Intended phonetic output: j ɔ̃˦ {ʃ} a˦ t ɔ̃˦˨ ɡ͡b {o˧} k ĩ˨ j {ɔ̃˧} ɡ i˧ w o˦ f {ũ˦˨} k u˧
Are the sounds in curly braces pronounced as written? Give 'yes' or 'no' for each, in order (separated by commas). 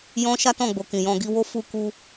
yes, no, yes, no